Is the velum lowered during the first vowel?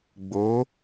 no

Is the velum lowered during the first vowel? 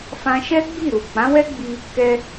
yes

